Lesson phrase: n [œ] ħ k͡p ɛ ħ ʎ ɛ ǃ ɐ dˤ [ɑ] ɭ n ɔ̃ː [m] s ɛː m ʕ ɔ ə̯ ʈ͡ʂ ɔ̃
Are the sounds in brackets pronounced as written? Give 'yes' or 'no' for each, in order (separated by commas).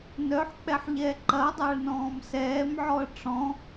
yes, no, yes